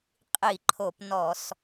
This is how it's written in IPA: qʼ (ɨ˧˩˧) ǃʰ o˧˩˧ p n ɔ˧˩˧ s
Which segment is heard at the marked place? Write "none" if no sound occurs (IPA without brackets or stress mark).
i˧˩˧